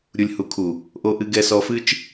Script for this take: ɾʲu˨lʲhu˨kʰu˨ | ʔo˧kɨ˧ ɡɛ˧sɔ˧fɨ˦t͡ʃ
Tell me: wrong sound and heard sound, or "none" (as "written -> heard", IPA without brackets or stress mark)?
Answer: k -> ʔ